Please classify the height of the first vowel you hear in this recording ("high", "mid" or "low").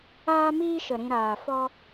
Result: low